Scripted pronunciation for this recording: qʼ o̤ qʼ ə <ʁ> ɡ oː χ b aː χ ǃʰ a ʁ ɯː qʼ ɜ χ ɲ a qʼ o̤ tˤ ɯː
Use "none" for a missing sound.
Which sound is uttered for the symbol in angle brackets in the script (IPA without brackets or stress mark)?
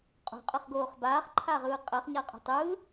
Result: χ